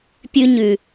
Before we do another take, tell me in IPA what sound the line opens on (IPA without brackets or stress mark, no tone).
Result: pʲ